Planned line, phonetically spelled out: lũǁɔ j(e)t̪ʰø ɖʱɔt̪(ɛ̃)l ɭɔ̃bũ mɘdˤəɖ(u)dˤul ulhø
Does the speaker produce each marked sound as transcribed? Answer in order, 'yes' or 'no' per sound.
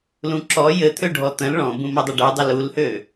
no, no, yes

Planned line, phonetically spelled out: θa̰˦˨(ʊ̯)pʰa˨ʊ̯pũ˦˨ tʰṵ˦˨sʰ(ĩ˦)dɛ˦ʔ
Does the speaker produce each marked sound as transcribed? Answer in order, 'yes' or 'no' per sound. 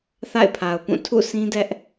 no, yes

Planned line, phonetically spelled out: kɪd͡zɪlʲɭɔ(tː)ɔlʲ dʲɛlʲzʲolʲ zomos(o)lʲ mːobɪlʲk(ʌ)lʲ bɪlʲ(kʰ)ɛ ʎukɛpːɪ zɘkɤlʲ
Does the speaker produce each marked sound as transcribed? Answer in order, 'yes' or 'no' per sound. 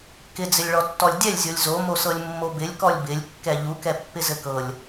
yes, no, no, no

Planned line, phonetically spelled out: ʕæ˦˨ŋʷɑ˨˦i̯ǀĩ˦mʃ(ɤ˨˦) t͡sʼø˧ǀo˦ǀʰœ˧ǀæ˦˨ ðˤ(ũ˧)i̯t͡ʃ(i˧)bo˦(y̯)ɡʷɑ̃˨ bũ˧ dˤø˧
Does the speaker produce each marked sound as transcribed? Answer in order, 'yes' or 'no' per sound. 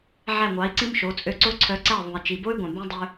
no, no, no, yes

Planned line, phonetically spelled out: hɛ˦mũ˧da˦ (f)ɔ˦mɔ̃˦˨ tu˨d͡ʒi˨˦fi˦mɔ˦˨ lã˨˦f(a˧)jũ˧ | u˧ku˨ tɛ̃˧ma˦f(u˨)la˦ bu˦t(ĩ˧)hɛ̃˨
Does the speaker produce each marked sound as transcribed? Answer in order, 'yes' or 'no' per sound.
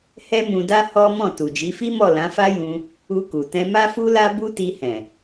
no, no, no, no

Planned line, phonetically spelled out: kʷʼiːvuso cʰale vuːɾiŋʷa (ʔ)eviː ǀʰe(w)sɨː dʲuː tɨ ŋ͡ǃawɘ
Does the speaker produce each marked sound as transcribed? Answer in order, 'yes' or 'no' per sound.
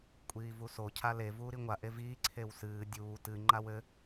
yes, yes

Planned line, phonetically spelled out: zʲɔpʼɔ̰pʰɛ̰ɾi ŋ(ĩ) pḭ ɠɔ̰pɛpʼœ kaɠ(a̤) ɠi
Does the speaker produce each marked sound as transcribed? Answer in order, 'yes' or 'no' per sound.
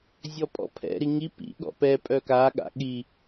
no, no

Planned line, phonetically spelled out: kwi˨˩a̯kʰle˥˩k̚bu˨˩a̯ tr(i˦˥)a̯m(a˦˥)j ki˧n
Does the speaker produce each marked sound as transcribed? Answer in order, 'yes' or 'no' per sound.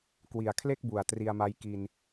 no, yes

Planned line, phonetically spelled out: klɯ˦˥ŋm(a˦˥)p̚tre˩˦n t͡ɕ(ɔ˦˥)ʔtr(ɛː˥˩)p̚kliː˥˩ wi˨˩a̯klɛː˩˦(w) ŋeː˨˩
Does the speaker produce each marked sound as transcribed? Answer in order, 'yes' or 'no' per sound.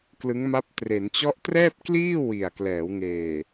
yes, yes, yes, yes

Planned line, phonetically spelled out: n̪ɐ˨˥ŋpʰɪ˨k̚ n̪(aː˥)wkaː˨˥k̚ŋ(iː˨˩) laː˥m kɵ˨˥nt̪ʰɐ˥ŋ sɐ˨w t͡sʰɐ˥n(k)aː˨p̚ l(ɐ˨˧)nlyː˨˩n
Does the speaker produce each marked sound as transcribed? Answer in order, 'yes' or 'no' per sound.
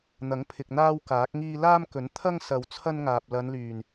yes, no, no, yes

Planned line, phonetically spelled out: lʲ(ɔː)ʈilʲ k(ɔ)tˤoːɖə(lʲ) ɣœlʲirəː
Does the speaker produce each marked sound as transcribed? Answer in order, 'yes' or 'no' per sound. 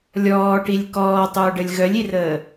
yes, no, yes

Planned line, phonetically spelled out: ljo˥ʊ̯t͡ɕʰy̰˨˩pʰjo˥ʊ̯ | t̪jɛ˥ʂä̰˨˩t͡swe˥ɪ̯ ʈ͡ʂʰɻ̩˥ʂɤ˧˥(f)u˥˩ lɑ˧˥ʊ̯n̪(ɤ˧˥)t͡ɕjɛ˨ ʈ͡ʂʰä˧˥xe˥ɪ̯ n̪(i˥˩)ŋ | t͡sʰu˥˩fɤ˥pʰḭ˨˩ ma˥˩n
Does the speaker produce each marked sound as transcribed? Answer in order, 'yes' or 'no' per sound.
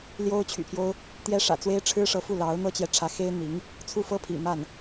yes, no, no

